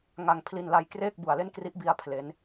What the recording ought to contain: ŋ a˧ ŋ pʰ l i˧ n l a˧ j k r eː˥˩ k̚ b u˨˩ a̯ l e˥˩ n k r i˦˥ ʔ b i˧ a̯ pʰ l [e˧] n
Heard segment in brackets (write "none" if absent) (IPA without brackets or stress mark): e˦˥